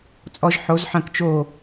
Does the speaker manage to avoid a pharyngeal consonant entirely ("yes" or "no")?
no